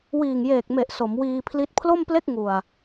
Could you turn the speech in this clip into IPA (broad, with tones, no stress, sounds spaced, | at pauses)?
w iː˨˩ ŋ j eː˨˩ k̚ m e˨˩ ʔ s o˩˦ m w iː˧ pʰ l i˦˥ t̚ pʰ l o˥˩ m p l e˥˩ k̚ ŋ u˨˩ a̯